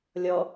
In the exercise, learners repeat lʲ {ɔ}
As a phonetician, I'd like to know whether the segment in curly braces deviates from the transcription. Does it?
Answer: no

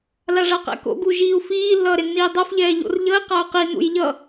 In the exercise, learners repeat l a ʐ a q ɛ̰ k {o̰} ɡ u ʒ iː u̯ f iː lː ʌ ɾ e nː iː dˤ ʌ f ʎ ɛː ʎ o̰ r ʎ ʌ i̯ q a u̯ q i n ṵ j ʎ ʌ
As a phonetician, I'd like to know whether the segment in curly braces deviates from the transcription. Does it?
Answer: no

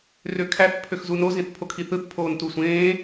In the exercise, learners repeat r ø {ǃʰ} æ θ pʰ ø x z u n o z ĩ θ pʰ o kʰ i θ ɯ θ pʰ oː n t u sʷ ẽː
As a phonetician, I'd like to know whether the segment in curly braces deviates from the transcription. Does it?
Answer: yes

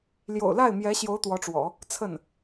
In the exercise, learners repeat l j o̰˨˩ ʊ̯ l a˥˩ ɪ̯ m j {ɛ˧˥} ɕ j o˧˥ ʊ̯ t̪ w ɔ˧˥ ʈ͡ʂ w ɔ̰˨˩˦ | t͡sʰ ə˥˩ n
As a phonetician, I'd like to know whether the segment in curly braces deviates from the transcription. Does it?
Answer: no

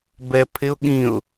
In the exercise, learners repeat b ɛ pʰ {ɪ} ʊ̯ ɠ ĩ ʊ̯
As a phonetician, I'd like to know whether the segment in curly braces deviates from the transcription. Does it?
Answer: no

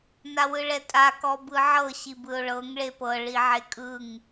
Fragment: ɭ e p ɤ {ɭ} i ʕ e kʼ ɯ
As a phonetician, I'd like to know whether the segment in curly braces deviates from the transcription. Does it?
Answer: no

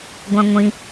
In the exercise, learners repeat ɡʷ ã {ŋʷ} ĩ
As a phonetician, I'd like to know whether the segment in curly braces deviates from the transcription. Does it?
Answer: no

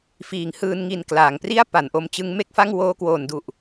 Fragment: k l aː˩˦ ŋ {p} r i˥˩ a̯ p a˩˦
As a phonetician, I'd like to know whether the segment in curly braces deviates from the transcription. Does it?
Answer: no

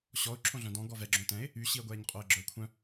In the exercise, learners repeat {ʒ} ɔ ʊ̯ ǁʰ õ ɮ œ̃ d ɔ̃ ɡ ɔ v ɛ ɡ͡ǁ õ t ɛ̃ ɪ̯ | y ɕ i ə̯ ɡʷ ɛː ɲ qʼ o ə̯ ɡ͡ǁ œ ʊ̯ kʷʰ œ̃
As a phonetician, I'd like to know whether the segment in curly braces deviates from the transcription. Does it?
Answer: yes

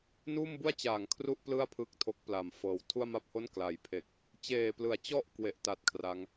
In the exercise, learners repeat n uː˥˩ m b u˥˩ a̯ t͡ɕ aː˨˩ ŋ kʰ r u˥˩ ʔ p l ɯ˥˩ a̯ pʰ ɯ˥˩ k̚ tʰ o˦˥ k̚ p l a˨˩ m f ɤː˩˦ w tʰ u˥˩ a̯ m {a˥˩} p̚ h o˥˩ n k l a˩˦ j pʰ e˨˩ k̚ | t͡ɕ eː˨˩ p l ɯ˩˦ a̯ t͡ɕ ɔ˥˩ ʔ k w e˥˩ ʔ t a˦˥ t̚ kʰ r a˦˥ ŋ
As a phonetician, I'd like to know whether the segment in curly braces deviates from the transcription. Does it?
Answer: no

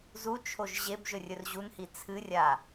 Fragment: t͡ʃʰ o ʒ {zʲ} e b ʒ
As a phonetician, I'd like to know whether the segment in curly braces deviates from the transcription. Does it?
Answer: yes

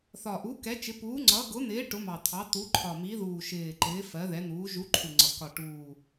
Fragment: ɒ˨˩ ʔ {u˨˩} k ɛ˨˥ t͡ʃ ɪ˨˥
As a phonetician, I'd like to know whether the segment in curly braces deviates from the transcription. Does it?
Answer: yes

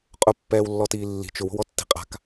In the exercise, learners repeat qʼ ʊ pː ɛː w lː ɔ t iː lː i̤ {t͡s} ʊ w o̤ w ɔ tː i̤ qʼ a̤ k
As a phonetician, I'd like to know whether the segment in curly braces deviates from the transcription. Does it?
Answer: yes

